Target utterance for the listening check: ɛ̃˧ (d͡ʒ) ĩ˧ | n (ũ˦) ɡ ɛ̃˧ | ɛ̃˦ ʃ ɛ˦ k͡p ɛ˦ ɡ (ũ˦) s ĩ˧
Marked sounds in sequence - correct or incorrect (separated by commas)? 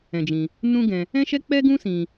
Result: correct, correct, correct